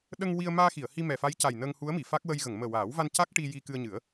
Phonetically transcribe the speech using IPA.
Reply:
ɗə˧ŋ wi˧ə̯maː˧xi˨˩˨ə̯hi˧ mɛ˨˩fa˧˥jca˨˩j nə˧ŋhu˧˥ə̯mi˨˩˨ fa˦˥k̚wə˧j ɣə˨˩˨ŋməː˨˩waː˨˩˦wva˧n ca˦˥k̚ ʈi˧ ji˧kɨ˧ə̯ɲɨ˨˩˦ə̯

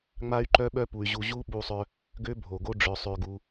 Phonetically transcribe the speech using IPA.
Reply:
ŋ͡ma˦y̯ ǃœ˦ɓœ˦pu˨y̯ʑu˧ ʑu˦ɓu˧sˤœ˧ | ɡø˦bʱo˨ɡo˦ ɖ͡ʐœ˧sˤø˧ɡu˧

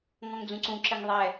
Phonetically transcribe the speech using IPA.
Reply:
ŋɔ̃ŋd͡zũǀũǁɘŋ ðˤɛ

